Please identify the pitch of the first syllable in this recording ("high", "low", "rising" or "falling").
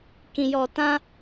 low